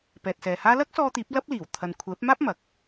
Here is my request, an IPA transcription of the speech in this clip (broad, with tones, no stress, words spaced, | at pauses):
pɛː˨t̚sɛː˨haː˥ lɐ˥k̚sɔː˧t̪iː˨˥p̚ lɐ˥p̚liː˨˩w t̪ʰɐ˨n kʷʰɛː˨˥p̚maː˥p̚ mɐ˨˥k̚